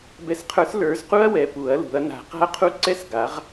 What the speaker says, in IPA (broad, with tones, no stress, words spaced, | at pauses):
bɛ˨˥sqʰə˞˨˥s lə˞˨˥zqu˥ɐ̯ wɛ˨˥pu˨˥ɐ̯lṳ˨˥ɐ̯ na̤˨˥qa̤˥ɐ̯qʰu˥ ǀɛ˥sɡa˨˥ʁ